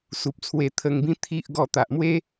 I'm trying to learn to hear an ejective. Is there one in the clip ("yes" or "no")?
no